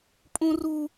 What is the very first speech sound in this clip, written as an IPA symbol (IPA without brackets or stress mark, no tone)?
pʼ